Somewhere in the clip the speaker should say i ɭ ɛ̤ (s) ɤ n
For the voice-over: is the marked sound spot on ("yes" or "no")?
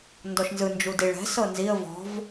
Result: yes